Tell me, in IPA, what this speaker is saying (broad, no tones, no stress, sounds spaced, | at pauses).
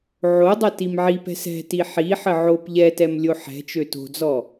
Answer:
ʕ o dˤ ɛ t i m ʕ i p ɛ̤ s ɛ̤ t i ħ i ħ ə ʕ o p ʎ ɛ t ɛ m lʲ o ħ ɛ̤ t͡ʃ ø t o̤ d͡z ɔ